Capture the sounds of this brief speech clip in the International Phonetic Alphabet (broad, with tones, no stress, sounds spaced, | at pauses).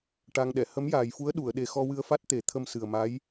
ʈ a˧ ŋ ɗ ɛ˨˩˨ h ə˧˥ m j aː˨˩ j f u˧˥ ə̯ ɗ u˨˩˨ ə̯ ɗ e˨˩ x ɔ˧ w ɨ˧ ə̯ f a˦˥ t̚ t̪ e˨˩˦ t̪ʰ ə˧ m s ɨ˨˩ ə̯ m a˧˥ j